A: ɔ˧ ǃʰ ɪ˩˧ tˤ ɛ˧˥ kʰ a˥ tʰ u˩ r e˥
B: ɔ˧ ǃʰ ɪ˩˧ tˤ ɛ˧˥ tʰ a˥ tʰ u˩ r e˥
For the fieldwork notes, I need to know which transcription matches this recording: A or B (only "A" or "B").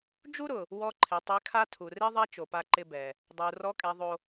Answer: A